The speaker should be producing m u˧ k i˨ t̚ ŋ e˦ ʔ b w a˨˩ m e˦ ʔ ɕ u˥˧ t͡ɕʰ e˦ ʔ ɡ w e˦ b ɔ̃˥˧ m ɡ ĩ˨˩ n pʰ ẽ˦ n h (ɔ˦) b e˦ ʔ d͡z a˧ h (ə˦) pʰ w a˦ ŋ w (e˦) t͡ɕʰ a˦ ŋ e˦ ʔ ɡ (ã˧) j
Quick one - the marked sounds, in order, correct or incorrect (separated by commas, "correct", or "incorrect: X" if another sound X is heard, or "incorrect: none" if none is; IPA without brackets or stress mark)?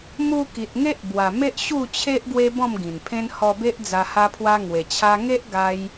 incorrect: ɔ˧, incorrect: a˦, incorrect: e˨˩, incorrect: a˧